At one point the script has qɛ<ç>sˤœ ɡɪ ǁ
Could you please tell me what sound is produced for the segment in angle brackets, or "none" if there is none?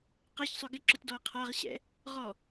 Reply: ç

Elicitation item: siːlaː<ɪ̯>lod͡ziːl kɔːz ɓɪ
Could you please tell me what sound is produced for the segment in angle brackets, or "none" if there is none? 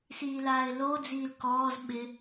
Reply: ɪ̯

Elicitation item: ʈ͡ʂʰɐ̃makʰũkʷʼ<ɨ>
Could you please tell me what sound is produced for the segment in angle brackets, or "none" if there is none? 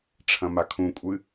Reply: ɨ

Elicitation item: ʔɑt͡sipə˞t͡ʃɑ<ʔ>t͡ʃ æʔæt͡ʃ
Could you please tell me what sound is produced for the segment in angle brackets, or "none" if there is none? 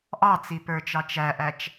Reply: none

